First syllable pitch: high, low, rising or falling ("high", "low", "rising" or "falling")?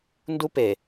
high